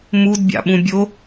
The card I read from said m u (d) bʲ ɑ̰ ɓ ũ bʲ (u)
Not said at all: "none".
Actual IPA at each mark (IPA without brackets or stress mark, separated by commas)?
d, o